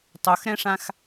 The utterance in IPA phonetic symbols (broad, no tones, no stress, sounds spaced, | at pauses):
tˤ o x ɾ ɛ̃ ʂ ã x